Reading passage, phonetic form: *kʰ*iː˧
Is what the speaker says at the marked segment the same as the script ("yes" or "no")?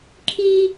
yes